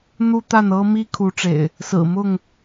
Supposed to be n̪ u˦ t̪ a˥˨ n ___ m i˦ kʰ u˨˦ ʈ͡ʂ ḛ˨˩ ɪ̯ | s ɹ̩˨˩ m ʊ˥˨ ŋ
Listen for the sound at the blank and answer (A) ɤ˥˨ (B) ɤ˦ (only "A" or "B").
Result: B